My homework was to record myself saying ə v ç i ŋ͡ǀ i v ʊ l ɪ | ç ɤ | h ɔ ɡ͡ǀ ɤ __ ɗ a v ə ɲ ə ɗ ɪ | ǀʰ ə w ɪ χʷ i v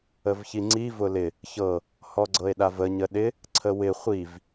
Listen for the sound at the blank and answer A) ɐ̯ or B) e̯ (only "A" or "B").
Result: B